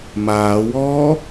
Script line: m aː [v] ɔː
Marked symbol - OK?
no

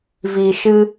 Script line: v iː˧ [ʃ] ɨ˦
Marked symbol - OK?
yes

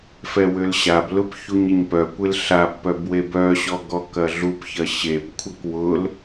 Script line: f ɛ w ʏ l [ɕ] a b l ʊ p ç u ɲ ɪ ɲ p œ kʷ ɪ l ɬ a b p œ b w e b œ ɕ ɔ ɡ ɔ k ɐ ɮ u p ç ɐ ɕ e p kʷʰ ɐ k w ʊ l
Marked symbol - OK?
yes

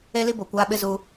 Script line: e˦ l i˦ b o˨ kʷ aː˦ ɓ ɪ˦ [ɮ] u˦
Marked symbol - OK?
no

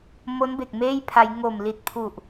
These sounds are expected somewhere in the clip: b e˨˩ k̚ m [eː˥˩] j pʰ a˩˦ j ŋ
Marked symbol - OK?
yes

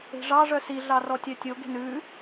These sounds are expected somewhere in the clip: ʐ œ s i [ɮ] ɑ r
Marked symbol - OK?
yes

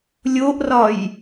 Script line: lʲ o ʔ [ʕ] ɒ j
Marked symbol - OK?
no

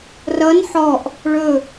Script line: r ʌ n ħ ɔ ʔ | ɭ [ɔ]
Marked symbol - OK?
no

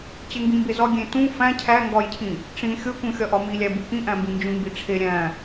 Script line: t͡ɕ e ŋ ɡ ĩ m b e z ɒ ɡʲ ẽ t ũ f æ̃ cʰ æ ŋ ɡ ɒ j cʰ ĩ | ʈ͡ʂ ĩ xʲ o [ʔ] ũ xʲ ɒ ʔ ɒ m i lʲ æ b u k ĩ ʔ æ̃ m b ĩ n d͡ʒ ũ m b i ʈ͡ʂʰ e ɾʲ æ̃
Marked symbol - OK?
no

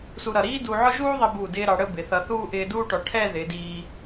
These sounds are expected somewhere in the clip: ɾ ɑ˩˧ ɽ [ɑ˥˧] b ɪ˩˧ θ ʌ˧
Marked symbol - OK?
no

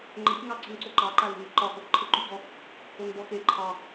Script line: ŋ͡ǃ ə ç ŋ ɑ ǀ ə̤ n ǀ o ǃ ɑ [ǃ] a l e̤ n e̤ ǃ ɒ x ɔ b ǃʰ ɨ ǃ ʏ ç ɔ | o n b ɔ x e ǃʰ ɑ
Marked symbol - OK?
yes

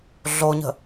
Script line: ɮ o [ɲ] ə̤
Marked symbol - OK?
yes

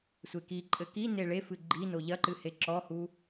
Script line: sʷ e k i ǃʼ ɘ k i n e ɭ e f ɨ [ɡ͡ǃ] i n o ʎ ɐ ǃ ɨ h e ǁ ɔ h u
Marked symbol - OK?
yes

